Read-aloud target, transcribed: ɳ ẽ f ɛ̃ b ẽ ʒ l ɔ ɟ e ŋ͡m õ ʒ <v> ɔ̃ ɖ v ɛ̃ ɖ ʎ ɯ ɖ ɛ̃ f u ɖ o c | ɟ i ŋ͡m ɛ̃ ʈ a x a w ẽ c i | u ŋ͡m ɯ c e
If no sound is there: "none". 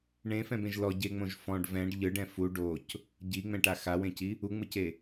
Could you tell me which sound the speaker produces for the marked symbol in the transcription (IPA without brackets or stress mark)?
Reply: f